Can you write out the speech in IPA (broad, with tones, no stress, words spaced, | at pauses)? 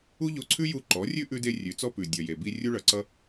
u˦ ʎo˧ǀʰʉ˦ ju˧ǃɔ˨˦rʲʉ˦ ʔʉ˦de˦rʲʉ˨˦t͡sɔ˦ pʉ˨ dʲʌ˨je˨bi˧ rʲu˦ɭʌ˨ ǀʌ˦